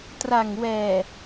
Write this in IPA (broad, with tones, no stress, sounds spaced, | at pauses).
t r a˨˩ ŋ w ɛː˨˩